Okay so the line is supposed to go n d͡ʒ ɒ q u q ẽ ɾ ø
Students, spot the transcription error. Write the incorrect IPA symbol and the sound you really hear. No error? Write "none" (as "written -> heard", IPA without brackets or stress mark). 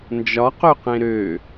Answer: u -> ø